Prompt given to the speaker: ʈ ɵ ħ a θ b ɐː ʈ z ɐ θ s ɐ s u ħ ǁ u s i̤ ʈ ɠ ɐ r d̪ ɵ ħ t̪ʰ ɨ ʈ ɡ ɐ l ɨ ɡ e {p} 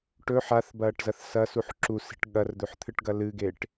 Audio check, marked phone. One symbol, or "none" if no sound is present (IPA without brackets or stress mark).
ʈ